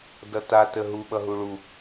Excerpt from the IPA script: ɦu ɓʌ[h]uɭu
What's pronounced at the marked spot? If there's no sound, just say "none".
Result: ɦ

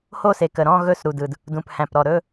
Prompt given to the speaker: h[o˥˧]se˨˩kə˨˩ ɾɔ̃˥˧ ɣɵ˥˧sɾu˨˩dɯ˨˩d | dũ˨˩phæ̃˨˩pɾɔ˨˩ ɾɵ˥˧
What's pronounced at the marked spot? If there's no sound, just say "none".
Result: o˥˧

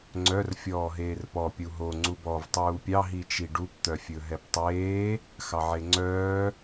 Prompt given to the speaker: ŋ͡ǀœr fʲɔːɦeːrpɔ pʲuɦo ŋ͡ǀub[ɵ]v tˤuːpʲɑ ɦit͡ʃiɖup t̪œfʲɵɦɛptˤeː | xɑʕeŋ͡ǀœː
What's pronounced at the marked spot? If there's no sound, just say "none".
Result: ɔ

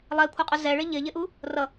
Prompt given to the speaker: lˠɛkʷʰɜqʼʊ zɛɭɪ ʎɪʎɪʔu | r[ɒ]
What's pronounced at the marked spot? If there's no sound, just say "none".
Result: ʌ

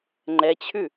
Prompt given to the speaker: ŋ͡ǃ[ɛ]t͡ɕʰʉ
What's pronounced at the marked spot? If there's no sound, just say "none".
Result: ɛ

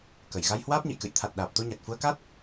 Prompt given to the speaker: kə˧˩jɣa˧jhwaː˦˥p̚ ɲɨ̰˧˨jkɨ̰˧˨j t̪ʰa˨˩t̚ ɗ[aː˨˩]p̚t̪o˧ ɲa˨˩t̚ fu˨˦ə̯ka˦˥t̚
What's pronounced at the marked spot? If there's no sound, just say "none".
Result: aː˨˩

